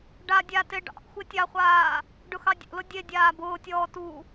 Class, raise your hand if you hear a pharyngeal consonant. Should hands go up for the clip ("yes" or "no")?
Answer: no